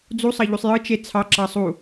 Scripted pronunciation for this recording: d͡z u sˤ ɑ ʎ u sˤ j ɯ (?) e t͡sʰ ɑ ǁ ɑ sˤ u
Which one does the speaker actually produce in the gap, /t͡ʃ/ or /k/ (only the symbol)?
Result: t͡ʃ